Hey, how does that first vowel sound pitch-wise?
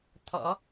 rising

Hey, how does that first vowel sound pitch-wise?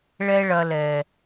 high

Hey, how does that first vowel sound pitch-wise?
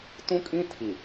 high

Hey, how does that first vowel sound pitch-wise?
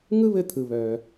high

